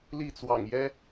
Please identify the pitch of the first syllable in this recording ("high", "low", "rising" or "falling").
falling